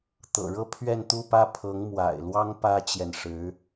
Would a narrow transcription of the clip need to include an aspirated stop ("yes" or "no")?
yes